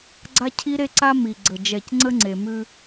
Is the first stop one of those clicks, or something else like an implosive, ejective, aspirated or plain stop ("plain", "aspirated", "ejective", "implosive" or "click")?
click